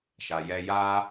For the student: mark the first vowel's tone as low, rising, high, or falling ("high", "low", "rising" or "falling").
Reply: low